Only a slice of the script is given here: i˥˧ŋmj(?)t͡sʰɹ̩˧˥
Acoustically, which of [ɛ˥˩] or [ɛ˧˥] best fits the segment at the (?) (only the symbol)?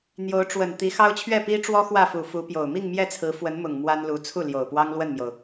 ɛ˥˩